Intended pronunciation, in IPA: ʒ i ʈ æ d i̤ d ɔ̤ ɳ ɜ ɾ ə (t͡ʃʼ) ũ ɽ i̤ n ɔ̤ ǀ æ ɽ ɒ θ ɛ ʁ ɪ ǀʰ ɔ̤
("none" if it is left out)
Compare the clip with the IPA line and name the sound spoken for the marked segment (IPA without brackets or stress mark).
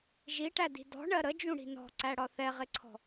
d͡ʒ